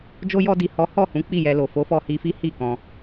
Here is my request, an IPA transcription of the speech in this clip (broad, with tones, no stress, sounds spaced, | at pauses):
d͡ʒ o˧ j ɔ˧ d i˨ h ɔ˨˦ h ɔ˦˨ h ũ˨˦ k͡p i˦˨ j ɛ˧ l o˨ f o˨˦ f ɔ˧ h i˧ f i˦ h i˦˨ k ɔ̃˧